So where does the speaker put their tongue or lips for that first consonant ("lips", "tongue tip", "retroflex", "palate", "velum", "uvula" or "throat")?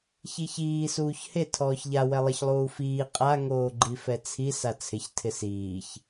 palate